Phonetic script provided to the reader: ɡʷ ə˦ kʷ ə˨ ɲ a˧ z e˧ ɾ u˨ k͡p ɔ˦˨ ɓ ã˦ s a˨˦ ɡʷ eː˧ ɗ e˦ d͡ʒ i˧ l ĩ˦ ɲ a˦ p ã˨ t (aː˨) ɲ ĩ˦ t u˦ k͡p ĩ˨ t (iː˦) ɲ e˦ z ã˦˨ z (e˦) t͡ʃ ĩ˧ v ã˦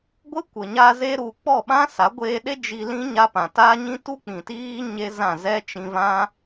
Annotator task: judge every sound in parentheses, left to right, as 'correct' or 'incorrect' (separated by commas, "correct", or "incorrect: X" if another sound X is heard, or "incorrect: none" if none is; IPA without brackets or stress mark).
incorrect: aː˦, correct, incorrect: ɛ˦